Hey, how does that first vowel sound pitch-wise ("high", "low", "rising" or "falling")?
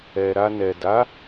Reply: low